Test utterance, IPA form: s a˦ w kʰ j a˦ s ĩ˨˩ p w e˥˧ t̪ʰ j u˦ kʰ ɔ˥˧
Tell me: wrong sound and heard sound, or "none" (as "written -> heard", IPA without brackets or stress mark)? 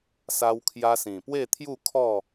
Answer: u˦ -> u˥˧